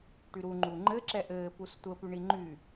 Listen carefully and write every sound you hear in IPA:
ʈ y ɾ u ŋ͡ǃ u ŋ͡ǃ ɘ ǁ ɛ ʔ ɘː p u s tʷ ə p y ɳ i ŋ͡ǃ y

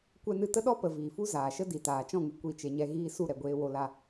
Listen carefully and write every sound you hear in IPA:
kʷ ɛ˧ n ɨ˧ t ə˦ ɗ ɔ˦ p ə˨ v iː˨ f u˦ z aː˨ ʃ ə˦ d i˨ t aː˨ t͡ʃ ɔ̃˦˨ ŋ ɨ˧ kʷ i˦˨ t͡ʃ e˧ ɲ ɛ˦ ɣ iː˧ s u˦˨ ɾ ɛ˨ ɡʷ eː˧ w o˧ l a˧

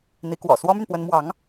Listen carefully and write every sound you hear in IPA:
n̪ i˧˥ k w ɔ̰˨˩ s w ɔ˥ m y˨ n p w ə˧˥ n m w ɑ˧˥ ŋ

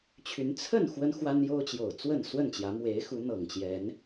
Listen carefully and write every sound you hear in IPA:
t͡ɕʰ y˨˦ n t͡sʰ ə˥˨ n x w ə˦ n x w a˦ n j o˦ ʊ̯ t͡ɕ j o˨˩ ʊ̯ t͡s w ə˥˨ n s w ə˥˨ n t͡ɕ j ä˨˦ m w e˨˦ ɪ̯ x u˨˦ n̪ ɤ˨˩ ŋ t͡ɕ j ɛ˨˦ n

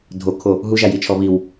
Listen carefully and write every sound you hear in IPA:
dʱ o kʰ o | ɦ u ʒ a j i t͡ʃʰ ɔ β i w

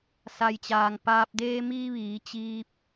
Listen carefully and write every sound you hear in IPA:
s a˩ j t͡ɕ aː˩ ŋ p aː˧ p̚ d eː˧ m iː˧ ʋ iː˩˧ t͡ɕ iː˧ p̚

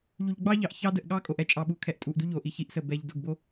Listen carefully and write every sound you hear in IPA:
ʎ u˨ ʎ ɡ͡b ɑ˦ ʎ ɑ˨ ʔ ç ɑ˦ d ə˨ ʔ ɠ ɑ˦ kʼ o˨ ʔ ɛ˦ t͡ʃʼ ɑ˨ ɓ u˨ kʰ ɛ˨ ʔ tʼ u˨ ʔ d u˦ ʎ o˨ ʔ i˨ ç i˦ ʔ s ə˨ b ɛ˨ ʎ d o˨ ɡ b o˦

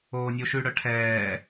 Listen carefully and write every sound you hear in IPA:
oː nʲ o ʃ ʉ ɽ œ ʈʰ ɛː

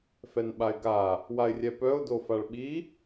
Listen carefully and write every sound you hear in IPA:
f ɛ n ɓ a ɪ̯ ɡ a | w a ɪ̯ rʲ ɛ p œ ʊ̯ d o f a ɭ ɓ i

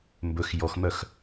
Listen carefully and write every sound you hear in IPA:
m b ɵ x j ɔ x m œ x

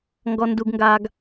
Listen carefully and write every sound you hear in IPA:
ŋ ɡ ɔ˩ n d u˩ ɡ ŋ ɡ aː˩ ɡ

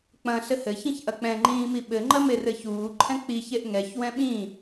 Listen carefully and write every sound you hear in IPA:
k͡p ɐ̃ ɬ ɘ h ɘ ç ĩ ç ʔ ɐ k͡p ɛ̃ ŋ͡ǃ ĩː m i ɓ ɘ ŋ͡ǃ ɐ m e r ɘ ç uː ǃʰ ɛ̃ k͡p i ç e ʔ ŋ ɛ ç w ɛ̃ ɓ ĩ

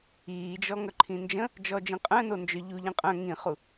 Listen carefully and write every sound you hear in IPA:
iː d͡ʒ ɔ ŋ œ ǃʰ ĩ n d͡ʒ ə̃ | d͡ʒ ɔ d͡ʒ ĩ qʼ œ̃ n o n d͡ʒ œ ʎ u ʎ ĩ qʼ œ̃ ŋ ĩ χ u

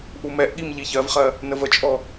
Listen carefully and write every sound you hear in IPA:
ʔ u m ɛ ʔ ɠ i m ʎ i ç ɜ v χ ɜ | n ə v ə t͡ʃʼ ɔ

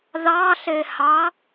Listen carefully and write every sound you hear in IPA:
ð ɑ ɬ e h ɑ

